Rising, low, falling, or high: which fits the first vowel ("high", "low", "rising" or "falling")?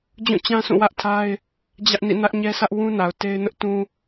falling